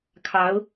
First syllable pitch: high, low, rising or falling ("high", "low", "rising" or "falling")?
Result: rising